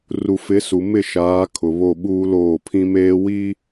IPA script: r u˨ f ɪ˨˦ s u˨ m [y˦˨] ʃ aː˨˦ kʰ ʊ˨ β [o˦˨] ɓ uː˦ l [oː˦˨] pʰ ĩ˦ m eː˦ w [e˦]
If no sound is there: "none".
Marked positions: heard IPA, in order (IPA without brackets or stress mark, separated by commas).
ɪ˦˨, o˦˨, oː˦˨, i˦